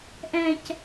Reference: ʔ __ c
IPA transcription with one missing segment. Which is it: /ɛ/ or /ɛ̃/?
ɛ̃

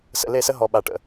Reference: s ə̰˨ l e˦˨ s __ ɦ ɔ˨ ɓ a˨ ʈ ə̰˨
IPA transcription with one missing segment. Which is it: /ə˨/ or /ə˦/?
ə˦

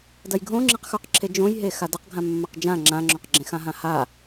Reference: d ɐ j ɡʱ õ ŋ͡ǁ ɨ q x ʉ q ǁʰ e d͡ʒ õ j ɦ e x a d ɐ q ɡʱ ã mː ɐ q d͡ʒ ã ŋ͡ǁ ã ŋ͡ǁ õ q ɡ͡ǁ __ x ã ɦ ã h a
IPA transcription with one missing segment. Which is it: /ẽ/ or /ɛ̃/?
ẽ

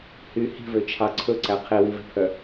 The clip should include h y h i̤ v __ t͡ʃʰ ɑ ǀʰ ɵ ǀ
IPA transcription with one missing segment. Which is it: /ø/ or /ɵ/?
ø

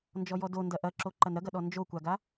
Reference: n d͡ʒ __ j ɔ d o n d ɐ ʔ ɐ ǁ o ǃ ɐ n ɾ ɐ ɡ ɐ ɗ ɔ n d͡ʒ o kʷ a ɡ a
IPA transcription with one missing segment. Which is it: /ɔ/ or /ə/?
ɔ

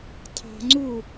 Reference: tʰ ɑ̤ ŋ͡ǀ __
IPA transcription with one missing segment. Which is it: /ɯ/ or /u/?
u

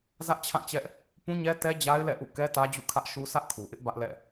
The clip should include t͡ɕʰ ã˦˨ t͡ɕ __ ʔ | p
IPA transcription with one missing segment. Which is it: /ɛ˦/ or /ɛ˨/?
ɛ˦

